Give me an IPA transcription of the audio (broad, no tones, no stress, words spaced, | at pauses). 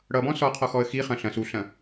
ɽʌbɔ̃ sɔqʰɔ xɔə̯xiχɐ̃ ɬɐ̃s uɬɐ̃